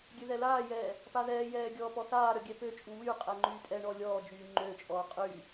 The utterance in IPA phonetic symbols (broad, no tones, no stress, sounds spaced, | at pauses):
ɡʲ ø ð ɛ l aː j ɛː | p a ð ɛː j ɛː ɡʲ ɔː p ɔ θ aː ɾ œ ɡʲ ɛ p ø t͡ʃʼ u w y qʼ ɛ ŋ͡ǃ yː tʼ ɛ ɳ ɔ lʲ ɔː d͡ʒ yː ŋ͡ǃ ø t͡ʃʼ ɔː qʼ y